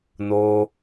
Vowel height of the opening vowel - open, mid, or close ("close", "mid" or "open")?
mid